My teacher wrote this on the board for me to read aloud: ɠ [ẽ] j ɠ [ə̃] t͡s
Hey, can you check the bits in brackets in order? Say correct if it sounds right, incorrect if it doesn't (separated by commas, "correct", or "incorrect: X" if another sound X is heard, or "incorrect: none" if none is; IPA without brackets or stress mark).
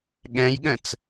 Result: incorrect: ɛ̃, correct